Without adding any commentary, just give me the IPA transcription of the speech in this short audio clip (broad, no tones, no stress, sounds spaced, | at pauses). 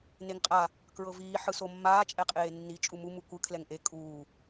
n e ŋ qʼ a | k ɹ ɤ v iː ħ ɯ s o mː aː t͡ʃʼ ɛ qʼ eː nː i t͡ʃʼ u m u m u kʷ ɯ kʰ l ɛ ŋ ʔ e kʼ uː